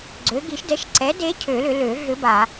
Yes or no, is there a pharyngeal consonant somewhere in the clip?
no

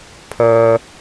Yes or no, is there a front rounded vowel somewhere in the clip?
yes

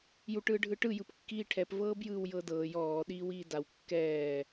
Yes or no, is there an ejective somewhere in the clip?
no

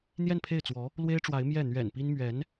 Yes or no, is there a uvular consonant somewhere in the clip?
no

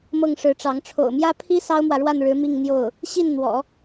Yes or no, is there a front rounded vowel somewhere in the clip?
no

